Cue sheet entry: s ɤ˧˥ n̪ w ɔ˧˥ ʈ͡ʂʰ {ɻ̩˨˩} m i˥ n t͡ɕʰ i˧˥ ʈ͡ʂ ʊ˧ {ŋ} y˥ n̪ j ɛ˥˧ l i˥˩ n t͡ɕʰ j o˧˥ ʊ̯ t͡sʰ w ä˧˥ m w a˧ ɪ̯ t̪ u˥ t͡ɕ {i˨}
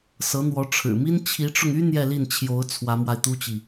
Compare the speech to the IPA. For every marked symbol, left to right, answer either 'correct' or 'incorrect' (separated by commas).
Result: correct, correct, correct